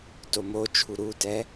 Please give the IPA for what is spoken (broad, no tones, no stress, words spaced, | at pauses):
tomot͡ʃʰu ɾutɛ